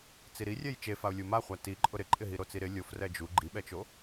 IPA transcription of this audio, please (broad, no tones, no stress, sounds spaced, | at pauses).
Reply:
t͡s i ɾ i rʲ ɛ j t͡ʃ e f a ʊ̯ lʲ u m a χʷ a t i ǃʼ ʊ ɾ ɪ ǃʼ ɪ ɦ i ɾ o t͡s i ɾ ɪ lʲ o f r ɛ d͡ʒ u ɡ͡ǃ i ɓ ɛ t͡ʃ o